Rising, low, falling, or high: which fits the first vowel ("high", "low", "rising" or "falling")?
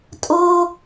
high